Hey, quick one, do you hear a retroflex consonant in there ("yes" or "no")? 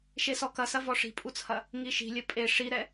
yes